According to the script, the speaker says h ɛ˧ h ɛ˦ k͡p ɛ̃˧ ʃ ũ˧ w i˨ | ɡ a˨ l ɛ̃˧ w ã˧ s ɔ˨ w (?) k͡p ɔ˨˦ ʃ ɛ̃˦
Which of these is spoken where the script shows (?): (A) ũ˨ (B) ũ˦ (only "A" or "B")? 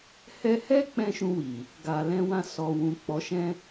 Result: A